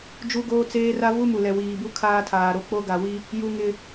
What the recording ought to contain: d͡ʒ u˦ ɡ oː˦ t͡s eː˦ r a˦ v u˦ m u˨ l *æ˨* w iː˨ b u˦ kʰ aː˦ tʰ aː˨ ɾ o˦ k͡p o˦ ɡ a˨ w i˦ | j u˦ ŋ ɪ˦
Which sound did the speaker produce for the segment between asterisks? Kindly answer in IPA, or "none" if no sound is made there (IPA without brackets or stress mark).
ɛ˨